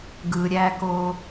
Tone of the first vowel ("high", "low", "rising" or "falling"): low